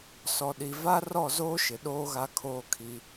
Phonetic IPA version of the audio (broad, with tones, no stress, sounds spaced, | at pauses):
s ɔ˨ ɗ i˨ v a˦ r ɔ˦˨ z oː˦ ʃ ɪ˨ ɗ oː˦ ɣ a˦ kʰ oː˦ kʰ i˦